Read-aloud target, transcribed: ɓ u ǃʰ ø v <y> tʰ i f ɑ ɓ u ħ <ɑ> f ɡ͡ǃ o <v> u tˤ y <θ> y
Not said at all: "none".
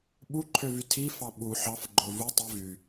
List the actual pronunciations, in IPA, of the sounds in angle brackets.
y, ɑ, v, v

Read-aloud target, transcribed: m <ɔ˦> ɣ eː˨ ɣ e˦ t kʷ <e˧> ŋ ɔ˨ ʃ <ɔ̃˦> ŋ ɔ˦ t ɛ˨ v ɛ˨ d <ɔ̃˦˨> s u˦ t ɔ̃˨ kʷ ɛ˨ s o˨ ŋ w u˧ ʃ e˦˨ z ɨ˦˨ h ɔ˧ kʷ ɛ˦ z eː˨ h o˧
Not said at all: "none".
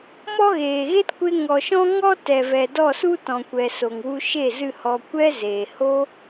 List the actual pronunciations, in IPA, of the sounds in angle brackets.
ɔ˦, e˧, ɔ̃˦, ɔ˦˨

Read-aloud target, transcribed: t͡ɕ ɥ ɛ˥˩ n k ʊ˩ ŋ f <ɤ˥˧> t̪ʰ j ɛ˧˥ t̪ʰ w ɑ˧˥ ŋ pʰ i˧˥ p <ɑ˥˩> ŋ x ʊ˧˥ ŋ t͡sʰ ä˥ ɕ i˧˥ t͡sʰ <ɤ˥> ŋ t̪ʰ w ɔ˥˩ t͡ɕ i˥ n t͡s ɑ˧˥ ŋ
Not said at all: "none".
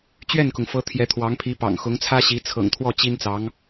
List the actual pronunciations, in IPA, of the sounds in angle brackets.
ɤ˧˥, ɑ̰˨˩, ɤ̰˨˩

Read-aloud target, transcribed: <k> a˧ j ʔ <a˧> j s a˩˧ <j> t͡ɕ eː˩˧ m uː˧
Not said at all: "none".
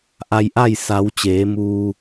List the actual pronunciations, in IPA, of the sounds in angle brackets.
ʔ, a˥˨, w

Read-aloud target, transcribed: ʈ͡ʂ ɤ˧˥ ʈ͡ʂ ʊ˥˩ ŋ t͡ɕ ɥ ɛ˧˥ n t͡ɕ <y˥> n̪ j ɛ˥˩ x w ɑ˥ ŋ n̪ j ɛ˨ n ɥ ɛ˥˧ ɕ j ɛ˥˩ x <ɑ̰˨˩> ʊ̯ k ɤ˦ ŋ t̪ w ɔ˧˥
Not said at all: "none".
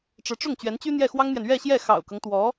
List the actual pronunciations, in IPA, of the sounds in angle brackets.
y˥, ɑ̰˨˩

